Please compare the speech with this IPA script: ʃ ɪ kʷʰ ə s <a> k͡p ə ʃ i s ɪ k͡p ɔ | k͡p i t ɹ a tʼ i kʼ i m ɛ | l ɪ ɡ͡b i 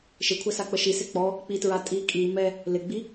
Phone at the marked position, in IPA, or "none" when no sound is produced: a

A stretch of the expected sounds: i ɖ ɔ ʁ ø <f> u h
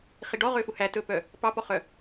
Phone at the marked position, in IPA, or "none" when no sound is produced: f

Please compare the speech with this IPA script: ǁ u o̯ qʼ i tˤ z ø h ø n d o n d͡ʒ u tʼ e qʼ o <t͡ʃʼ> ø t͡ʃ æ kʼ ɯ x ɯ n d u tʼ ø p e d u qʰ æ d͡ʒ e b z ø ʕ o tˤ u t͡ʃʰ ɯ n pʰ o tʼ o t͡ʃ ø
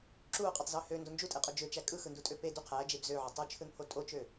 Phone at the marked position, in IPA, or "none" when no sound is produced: d͡ʒ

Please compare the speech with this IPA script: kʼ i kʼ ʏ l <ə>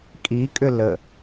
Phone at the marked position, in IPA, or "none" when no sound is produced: ə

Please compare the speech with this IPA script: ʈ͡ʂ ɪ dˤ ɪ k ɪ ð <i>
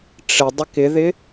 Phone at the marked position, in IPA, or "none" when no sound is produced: ɪ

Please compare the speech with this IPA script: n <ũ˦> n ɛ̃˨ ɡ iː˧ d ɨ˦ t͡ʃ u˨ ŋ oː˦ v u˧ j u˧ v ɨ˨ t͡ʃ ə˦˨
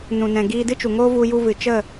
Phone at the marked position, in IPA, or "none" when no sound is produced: ũ˨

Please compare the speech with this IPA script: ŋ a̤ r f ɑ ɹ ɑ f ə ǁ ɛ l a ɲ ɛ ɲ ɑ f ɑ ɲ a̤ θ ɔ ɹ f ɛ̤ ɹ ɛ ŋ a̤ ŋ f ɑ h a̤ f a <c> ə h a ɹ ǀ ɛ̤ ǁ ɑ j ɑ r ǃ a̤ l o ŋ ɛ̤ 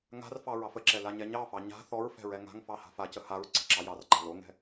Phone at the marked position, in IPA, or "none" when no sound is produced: c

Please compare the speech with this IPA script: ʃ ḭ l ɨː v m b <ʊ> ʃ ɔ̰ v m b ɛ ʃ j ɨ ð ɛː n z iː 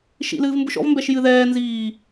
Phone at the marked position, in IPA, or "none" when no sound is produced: ʊ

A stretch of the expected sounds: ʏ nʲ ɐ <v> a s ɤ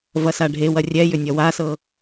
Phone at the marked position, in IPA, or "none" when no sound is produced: w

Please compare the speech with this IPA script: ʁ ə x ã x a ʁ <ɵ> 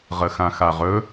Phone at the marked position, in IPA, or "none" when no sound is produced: ɵ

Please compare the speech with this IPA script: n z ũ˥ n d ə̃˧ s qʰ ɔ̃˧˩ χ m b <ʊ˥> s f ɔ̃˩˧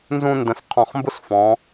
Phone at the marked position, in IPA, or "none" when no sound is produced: ʊ˥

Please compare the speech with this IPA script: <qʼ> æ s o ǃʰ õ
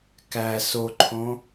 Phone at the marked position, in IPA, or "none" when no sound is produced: k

